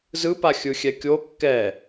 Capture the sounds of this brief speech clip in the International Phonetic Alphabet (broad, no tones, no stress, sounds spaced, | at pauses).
z ɯ p a xʲ ɯ xʲ ɛ kʲ o kː ɛ